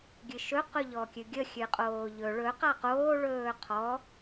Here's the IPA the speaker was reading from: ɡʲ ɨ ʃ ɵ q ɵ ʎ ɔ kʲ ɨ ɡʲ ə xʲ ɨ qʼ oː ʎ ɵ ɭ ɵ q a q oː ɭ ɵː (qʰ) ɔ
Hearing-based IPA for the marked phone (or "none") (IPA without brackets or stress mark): qʰ